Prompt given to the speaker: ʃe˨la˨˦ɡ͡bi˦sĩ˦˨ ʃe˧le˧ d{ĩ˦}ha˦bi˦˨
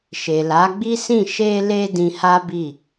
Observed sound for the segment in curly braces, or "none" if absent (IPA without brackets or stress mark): ĩ˧